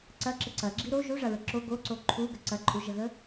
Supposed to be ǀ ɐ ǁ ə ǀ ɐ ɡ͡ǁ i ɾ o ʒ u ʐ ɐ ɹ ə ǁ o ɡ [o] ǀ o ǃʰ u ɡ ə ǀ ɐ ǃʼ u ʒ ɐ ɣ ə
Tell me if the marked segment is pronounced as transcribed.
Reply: yes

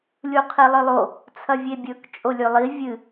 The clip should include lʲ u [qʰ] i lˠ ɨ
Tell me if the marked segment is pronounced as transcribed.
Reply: yes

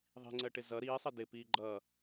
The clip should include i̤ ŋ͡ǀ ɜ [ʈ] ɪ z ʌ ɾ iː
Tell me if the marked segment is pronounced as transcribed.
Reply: yes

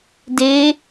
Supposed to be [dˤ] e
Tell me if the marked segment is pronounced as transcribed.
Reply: no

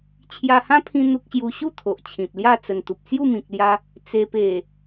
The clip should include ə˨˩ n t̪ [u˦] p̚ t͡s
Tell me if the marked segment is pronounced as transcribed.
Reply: no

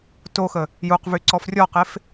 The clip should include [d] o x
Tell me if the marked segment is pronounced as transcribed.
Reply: no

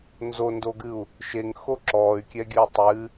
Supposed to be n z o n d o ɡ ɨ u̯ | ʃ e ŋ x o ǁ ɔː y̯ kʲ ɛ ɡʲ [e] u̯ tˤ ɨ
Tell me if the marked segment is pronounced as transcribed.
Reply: no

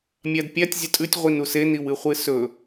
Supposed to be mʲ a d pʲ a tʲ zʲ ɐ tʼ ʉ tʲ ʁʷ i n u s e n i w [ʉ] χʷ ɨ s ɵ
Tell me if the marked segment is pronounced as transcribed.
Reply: no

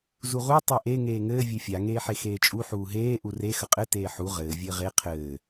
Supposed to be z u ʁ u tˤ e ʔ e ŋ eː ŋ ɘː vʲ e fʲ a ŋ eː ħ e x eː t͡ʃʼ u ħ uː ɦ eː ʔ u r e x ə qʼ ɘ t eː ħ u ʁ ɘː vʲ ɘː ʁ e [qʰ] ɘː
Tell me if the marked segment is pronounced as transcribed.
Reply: yes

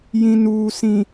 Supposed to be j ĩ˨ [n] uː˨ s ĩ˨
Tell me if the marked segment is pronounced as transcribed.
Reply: yes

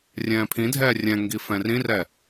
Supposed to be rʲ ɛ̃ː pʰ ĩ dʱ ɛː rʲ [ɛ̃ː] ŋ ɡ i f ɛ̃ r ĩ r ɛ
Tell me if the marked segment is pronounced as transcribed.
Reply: no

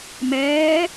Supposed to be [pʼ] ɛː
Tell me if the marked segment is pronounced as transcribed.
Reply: no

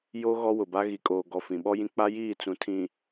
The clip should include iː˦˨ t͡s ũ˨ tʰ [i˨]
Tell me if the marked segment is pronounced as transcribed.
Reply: no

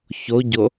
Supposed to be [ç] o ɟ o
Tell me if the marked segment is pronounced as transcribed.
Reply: yes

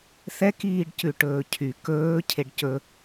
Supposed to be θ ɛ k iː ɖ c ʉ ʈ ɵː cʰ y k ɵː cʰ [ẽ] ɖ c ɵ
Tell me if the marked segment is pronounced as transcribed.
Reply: no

